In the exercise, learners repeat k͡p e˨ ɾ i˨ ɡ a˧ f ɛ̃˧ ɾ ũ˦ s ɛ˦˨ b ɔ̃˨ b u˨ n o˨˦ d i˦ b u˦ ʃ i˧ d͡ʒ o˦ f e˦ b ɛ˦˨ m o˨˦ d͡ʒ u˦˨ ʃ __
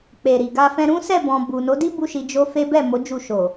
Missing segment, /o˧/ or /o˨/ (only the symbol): o˨